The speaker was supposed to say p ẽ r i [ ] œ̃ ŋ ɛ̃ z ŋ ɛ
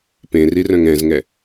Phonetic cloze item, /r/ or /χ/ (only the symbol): r